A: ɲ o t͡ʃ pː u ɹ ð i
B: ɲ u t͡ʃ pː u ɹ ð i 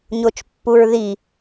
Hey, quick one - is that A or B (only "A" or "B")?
A